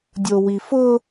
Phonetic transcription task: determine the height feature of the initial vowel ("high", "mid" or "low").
mid